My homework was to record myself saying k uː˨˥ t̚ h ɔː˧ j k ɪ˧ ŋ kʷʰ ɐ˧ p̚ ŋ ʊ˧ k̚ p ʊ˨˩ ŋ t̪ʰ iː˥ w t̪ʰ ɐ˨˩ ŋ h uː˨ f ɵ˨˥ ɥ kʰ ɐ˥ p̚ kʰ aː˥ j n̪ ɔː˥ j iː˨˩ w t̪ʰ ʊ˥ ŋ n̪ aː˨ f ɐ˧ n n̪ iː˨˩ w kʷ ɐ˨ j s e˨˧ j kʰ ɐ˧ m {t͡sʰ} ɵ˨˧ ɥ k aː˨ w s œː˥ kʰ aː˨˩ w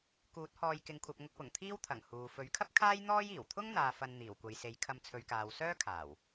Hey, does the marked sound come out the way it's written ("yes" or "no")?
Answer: yes